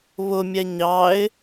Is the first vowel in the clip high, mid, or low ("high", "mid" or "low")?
high